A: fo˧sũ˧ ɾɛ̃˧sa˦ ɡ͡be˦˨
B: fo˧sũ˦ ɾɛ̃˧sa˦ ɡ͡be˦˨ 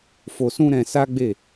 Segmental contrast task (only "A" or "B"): B